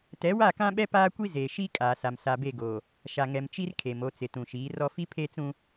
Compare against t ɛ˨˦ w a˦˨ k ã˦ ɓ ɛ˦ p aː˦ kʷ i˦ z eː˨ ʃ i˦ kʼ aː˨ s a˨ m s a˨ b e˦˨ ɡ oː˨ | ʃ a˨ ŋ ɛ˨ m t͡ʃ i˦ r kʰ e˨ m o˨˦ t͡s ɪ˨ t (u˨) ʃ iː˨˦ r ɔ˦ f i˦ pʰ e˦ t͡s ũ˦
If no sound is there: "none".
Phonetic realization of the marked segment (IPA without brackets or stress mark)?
ũ˨